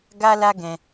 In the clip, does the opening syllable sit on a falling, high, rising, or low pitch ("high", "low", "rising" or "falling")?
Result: high